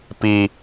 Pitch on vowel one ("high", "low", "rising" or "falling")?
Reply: low